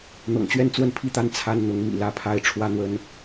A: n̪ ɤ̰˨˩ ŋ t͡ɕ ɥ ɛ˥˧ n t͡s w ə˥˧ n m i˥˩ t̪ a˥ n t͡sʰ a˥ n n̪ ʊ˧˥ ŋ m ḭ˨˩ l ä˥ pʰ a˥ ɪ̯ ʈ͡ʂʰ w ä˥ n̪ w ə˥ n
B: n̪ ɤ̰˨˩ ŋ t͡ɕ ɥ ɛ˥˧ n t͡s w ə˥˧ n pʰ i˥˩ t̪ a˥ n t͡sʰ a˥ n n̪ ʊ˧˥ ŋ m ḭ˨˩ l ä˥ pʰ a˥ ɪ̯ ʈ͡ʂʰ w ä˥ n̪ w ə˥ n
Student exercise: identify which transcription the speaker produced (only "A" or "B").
B